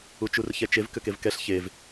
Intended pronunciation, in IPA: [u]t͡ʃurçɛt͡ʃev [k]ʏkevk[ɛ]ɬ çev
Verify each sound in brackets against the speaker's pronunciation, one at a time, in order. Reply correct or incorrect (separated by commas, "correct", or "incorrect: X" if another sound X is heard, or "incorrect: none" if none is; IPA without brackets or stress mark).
correct, correct, correct